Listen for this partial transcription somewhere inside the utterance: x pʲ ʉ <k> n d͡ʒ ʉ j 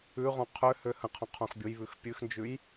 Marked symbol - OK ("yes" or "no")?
no